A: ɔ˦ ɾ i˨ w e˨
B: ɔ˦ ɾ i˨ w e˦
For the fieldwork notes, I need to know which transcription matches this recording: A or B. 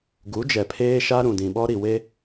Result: B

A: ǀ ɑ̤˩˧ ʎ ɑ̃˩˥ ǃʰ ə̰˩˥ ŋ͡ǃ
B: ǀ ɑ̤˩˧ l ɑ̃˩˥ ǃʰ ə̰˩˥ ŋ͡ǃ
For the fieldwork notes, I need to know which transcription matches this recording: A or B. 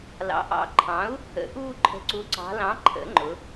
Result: B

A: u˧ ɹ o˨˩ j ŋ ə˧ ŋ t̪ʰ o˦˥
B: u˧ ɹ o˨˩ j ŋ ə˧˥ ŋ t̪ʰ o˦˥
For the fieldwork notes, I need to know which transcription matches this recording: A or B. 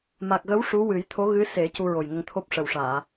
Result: A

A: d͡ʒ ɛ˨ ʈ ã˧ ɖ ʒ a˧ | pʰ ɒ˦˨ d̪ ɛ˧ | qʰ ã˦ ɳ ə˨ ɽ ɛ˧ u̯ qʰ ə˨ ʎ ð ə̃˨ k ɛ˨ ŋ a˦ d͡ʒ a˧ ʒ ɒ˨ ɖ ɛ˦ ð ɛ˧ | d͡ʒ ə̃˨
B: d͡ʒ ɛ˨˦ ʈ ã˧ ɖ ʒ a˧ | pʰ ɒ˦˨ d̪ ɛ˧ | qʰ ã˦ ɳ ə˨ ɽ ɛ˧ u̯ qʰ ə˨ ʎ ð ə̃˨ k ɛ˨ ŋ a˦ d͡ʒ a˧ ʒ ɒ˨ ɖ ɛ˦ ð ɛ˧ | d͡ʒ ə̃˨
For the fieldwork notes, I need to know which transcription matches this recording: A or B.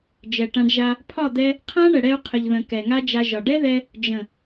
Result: A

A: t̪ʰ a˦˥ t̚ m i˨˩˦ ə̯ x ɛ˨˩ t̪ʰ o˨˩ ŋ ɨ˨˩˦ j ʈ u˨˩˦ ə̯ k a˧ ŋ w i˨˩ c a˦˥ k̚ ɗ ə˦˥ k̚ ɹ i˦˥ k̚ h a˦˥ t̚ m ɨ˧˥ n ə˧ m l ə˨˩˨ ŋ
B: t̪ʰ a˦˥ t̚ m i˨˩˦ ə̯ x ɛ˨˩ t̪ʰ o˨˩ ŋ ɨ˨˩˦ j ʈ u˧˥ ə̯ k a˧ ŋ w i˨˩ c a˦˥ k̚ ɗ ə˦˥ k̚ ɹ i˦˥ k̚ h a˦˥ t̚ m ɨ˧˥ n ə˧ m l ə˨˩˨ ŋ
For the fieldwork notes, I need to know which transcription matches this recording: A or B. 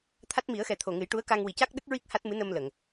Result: B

